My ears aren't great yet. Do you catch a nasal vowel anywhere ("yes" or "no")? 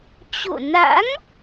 no